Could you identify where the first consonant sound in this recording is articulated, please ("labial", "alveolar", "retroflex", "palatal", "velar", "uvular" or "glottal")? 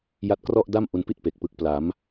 palatal